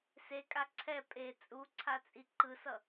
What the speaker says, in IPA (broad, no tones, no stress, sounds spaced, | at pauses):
s e kʼ a ǀʰ ɛ pʼ e t͡sʼ u ǀʰ a t͡sʼ i ǃ ɯ s ʌ